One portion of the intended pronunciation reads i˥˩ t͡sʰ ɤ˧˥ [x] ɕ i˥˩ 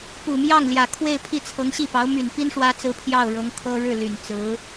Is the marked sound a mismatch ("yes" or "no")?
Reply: yes